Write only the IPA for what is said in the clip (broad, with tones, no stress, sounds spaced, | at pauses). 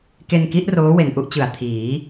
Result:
k e˧ n k i˦˥ ʔ r oː˦˥ w e˨˩ n ʔ u˥˩ ʔ t͡ɕ ɯ˨˩ a̯ tʰ iː˩˦